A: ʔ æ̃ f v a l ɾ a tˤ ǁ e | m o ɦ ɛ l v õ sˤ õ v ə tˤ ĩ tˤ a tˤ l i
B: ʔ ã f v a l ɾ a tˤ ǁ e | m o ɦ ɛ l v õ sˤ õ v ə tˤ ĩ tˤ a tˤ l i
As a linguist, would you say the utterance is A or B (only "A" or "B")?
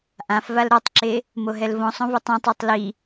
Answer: B